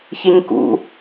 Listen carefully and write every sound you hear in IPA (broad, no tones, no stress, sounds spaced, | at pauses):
ç e ɲ k ṵ